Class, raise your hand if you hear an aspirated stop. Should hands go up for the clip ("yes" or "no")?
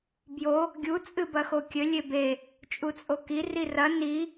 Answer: no